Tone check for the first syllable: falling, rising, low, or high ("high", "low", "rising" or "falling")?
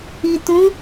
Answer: low